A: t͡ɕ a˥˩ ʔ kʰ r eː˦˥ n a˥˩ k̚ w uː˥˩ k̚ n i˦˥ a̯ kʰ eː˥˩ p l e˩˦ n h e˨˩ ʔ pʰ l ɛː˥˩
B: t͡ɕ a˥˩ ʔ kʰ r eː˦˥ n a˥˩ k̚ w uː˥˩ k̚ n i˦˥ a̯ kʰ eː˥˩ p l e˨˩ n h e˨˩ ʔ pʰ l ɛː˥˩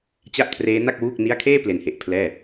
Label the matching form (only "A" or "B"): B